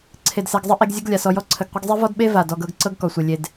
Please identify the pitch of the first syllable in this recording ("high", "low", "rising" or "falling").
low